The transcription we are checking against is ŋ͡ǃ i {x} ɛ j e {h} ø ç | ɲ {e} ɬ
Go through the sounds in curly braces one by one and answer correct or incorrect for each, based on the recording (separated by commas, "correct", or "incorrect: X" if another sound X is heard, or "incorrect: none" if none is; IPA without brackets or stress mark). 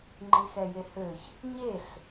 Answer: correct, correct, correct